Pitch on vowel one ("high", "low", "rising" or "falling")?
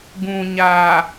low